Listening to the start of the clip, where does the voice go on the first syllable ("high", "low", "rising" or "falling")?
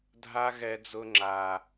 high